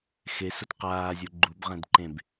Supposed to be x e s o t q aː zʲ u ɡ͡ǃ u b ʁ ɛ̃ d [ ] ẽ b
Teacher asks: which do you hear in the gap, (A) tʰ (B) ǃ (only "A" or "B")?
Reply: B